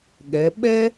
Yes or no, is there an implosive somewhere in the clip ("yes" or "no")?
yes